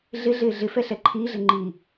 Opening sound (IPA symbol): ɮ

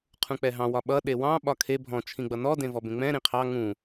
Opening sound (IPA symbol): qʰ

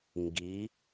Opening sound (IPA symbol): ŋ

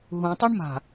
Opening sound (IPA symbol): ɦ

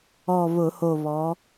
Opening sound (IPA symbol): ɔ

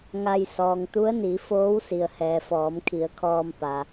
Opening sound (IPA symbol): ŋ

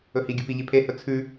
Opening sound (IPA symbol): ɵ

